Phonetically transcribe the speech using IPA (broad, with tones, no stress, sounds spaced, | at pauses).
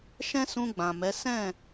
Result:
ʃ ɛ̃˦ s ũ˧ ɡ͡b ã˨ m ɛ˨˦ s ɛ̃˦˨